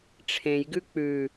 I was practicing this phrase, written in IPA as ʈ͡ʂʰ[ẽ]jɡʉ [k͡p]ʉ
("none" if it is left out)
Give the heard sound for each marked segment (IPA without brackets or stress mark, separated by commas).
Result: ẽ, k͡p